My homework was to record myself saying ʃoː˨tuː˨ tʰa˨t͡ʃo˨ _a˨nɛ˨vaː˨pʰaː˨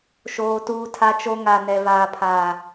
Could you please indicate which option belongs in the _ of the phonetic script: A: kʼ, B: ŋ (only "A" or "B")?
B